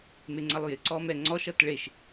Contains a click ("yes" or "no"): yes